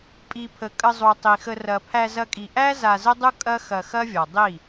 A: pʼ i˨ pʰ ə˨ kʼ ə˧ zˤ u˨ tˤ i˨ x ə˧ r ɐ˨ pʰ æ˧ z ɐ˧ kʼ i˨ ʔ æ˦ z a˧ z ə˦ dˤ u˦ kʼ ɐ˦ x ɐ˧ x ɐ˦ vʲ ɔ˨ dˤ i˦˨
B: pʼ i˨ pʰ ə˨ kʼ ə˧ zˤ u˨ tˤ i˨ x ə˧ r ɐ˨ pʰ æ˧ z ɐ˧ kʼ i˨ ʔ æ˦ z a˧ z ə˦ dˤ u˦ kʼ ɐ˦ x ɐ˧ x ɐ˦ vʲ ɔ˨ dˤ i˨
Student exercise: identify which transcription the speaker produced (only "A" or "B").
A